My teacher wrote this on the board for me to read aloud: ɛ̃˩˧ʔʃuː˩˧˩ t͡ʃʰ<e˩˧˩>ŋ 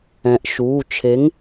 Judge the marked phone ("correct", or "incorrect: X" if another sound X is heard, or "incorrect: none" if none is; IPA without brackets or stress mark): incorrect: e˨˥